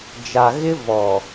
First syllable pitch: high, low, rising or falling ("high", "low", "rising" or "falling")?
low